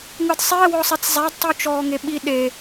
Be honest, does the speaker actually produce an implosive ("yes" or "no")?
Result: yes